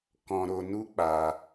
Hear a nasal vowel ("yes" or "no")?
yes